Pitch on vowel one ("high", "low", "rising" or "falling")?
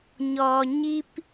low